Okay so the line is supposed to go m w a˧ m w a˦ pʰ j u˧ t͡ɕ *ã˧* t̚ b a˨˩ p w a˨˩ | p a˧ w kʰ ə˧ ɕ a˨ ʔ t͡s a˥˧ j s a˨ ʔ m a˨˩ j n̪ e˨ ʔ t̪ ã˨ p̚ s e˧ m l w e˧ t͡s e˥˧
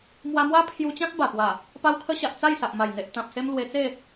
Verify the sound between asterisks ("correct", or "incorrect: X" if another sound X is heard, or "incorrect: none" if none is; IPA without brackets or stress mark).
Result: incorrect: ã˦